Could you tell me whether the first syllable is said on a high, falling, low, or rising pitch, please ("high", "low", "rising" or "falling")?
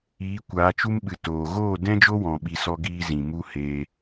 rising